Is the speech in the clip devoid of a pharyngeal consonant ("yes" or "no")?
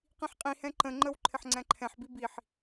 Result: no